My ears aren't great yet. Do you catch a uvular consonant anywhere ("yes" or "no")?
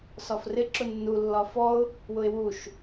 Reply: no